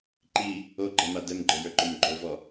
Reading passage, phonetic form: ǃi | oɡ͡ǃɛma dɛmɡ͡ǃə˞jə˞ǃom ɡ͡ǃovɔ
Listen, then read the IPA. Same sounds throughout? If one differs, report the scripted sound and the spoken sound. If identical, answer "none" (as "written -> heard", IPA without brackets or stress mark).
none